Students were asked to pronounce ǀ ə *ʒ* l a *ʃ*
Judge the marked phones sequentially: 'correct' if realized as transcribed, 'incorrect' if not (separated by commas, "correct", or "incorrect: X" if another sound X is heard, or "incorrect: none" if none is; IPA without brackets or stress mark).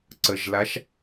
correct, correct